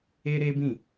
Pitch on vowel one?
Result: high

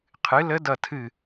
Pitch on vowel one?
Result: rising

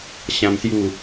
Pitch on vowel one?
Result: high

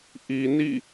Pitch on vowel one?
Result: low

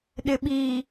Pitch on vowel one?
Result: low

